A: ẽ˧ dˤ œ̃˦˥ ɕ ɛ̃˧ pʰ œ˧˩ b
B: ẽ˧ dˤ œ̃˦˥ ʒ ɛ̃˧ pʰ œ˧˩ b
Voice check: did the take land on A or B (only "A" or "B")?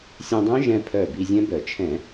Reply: B